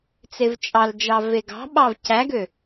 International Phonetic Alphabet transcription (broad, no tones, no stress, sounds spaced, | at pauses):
t͡s e v t͡ʃʼ ɑ l d͡ʒ ɑ v e ɡ ɑ̤ ɓ ɑ v c æ ɡ ø